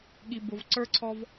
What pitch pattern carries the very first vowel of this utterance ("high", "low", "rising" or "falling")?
low